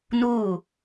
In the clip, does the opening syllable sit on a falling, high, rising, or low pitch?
falling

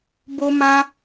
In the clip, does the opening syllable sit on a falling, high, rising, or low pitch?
high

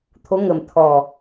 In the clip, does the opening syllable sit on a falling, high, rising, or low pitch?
rising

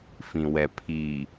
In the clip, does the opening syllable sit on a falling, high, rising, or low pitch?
low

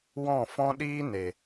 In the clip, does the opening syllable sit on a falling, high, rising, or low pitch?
falling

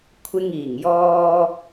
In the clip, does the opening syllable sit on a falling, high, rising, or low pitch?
high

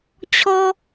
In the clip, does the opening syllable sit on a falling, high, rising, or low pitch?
low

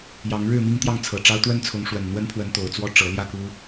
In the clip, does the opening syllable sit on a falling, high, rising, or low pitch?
rising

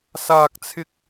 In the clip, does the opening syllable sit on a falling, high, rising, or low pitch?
high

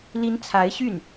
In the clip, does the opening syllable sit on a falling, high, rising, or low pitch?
rising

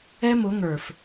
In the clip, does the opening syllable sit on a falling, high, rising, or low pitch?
high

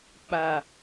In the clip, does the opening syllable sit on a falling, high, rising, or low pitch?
low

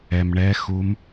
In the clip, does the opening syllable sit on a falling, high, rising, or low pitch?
low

